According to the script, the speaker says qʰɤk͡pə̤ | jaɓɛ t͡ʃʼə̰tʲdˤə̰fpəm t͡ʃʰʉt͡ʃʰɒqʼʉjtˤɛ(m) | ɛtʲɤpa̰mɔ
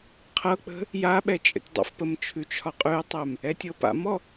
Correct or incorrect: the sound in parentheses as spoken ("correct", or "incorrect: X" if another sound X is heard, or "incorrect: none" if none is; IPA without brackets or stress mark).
correct